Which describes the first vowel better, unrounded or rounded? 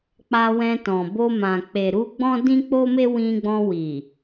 unrounded